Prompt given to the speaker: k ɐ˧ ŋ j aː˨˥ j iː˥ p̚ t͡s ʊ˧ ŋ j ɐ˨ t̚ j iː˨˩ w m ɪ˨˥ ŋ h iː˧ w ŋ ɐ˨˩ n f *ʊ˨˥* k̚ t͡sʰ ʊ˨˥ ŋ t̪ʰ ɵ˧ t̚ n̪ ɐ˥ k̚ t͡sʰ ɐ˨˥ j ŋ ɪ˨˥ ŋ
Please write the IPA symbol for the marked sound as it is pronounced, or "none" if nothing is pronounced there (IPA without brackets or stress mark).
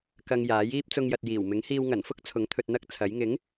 ʊ˥